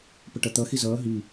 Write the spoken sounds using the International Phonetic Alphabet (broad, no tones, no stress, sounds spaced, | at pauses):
p ə ʈ ʌ t̪ ʌ x i z ʌː ɦ i